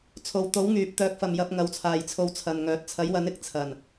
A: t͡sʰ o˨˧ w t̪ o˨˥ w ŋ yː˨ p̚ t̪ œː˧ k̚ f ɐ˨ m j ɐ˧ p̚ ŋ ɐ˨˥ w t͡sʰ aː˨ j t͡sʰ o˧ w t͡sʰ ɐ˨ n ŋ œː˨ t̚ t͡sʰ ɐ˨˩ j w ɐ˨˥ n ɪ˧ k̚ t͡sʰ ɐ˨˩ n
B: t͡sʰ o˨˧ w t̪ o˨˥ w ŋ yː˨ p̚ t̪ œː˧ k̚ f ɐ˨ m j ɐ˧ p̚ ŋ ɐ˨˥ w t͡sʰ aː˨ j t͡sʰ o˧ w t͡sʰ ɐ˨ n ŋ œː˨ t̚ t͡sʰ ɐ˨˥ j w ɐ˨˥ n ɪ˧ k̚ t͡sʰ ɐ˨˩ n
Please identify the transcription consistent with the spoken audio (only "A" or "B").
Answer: B